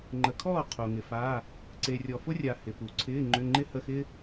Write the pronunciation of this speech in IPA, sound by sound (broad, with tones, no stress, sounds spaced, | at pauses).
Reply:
ŋ͡ǃ ə˨ kʰ ɔː˥˨ qʰ o˨ ŋ ɪ˨ f a˧˥˧ | ǀ e˨ rʲ ɔ˨ f ʊ˥ rʲ a˨ h ɪ˨ p u˨ ǀʰ ɪː˧˥˧ ŋ͡ǃ ʏ˧˥˧ ŋ͡ǃ ɪ˥ h ə˧˥˧ x ɪ˥